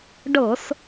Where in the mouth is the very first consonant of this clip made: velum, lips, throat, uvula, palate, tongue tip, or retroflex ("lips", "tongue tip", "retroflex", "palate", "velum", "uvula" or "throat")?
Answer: retroflex